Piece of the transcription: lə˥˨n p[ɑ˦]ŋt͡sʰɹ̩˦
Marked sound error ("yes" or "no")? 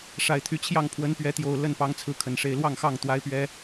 no